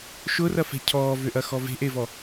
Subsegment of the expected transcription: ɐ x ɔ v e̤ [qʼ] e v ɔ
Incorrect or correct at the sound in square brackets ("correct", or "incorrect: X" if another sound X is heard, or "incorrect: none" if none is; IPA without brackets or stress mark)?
incorrect: ʔ